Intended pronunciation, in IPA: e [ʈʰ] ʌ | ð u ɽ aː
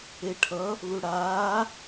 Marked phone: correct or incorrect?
correct